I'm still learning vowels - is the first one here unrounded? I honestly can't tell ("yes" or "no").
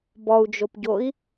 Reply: no